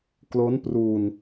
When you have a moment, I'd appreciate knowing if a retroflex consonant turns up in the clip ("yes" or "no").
no